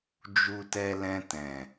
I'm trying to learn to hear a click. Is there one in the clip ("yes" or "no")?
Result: no